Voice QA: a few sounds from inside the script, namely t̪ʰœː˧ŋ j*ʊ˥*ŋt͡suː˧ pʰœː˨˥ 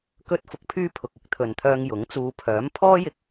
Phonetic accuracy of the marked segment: incorrect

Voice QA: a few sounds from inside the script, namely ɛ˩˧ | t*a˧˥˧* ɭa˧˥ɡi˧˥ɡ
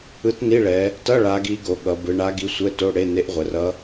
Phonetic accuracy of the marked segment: incorrect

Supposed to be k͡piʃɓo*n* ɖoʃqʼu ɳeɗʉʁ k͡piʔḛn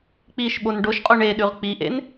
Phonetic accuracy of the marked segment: correct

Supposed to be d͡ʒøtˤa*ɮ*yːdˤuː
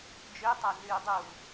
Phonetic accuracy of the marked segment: correct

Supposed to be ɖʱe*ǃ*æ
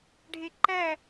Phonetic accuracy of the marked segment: correct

